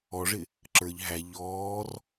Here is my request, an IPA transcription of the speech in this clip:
ɔ ʐ ɪ | ǁ ə˞ ʎ ɦ æ ʎ ɔː r

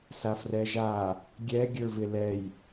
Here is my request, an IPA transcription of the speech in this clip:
s a f r ɛ ʒ a | ɡʲ ɛ ɡʲ ə˞ v ɪ l ɛ j

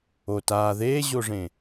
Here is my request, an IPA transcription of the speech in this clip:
o t aː ð eː ʑ o ʐ ẽ

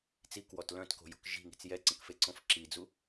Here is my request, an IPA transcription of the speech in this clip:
t͡s i k w ɔ t l œ̃ t k o̤ j o̤ k ʒ i̤ ŋ i̤ t͡s j ɛ ǀ ə̃ k f e ǀ õ f ǁ i d͡z u

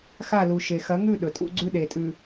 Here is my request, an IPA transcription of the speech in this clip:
x a˦˨ l u˨ ʃ e˨ x ɐ˨˦ ŋ ʉ˦˨ ɗ ɵ˨ tʼ ṵ˦ ɡ͡ǀ ʉ˦ ɗ e˨ tʼ ʉ˨

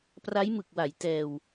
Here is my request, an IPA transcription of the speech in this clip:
p r a˦˥ j m ɯ˨˩ k̚ w a˩˦ j t ɛː˧ w

